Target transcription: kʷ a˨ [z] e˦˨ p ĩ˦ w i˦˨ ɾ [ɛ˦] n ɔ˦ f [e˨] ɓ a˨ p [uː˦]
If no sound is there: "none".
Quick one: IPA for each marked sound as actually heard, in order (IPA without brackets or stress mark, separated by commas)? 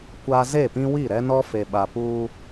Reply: z, ɛ˦, e˨, uː˦